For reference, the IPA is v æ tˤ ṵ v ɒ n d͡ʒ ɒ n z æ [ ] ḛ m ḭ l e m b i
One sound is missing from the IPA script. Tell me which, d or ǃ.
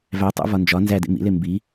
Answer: d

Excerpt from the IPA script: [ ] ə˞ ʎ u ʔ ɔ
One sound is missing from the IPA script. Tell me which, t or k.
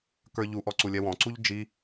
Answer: k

